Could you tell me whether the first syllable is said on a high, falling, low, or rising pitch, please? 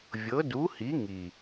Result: rising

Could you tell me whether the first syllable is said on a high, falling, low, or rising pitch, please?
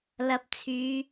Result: low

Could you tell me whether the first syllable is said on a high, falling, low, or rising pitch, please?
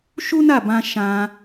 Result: high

